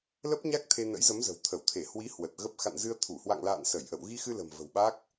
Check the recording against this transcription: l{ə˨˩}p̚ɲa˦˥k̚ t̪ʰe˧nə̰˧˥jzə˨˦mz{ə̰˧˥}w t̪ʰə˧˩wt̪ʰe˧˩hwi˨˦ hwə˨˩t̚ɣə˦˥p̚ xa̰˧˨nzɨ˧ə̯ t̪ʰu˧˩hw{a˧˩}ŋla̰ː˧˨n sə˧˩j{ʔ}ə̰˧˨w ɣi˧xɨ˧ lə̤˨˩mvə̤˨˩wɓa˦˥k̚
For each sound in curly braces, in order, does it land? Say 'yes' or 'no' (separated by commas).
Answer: no, no, no, yes